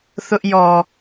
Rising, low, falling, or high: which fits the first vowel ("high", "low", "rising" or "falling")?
high